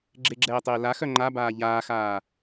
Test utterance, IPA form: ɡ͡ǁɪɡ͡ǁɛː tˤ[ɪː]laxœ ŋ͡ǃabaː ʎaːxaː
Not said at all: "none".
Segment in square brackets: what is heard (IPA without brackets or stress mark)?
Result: ɪː